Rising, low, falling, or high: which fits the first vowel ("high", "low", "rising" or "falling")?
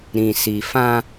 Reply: low